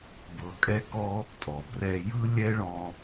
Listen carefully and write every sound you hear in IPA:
b ɤ˧ kʼ ɛ˦ k ɔ˦ | tʼ ɔ˨ b r ɛ˧ j ɯ˦ lʲ ɛ˦ ɭ ɔ̃˧

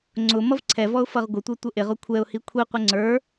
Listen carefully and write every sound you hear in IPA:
ŋ͡ǀ ʊ m ʌ v ǀʰ ɛ v ɔ ʊ̯ f ʌ ʁ ɡʷ ə tʷ ɛ tʷ ə ʔ ɪ ʁ ʊ kʷʰ ɛ ʊ̯ h i kʷʰ i qʷ ɪ ŋ͡ǀ ə˞

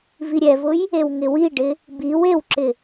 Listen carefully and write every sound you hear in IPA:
v i ɾʲ ɛ v ʊ j | e w ŋ ɪ w i ɖ ɪ | b i w e w ǁ ɪ

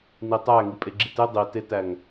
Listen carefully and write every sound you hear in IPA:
n i tˤ æ ŋ i pʼ e ɡ͡ǁ i t e dˤ i t e t æ ŋ

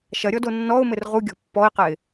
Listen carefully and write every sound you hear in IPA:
ʃ ɐ ɾʲ ɔ d o nː ɔ ʊ̯ m ɘ r ʁ u ɡʲ ɔ̤ pː ɔ ɪ̯ q ɛ ɪ̯

